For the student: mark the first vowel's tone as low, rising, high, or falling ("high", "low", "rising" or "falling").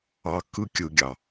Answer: low